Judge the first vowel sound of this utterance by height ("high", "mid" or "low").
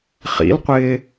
high